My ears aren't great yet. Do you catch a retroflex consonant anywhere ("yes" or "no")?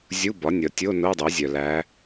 no